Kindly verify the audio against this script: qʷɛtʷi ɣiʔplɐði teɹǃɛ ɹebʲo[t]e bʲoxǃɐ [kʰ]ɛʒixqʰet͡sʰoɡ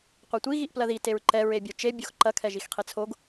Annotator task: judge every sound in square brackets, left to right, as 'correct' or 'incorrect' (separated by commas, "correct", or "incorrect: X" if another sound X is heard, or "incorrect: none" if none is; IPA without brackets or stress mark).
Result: incorrect: t͡ʃ, correct